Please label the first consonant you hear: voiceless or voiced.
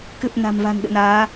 voiceless